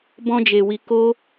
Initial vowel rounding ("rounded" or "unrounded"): rounded